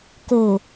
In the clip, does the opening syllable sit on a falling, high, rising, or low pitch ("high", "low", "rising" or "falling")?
low